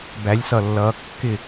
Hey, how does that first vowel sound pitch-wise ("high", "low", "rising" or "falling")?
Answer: rising